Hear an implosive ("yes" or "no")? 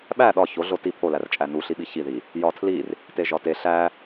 yes